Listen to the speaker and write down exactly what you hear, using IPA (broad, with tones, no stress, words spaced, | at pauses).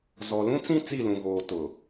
zɔ˨lũ˦t͡sĩ˦ t͡si˦˨lũ˨ɣoː˨ tʊ˨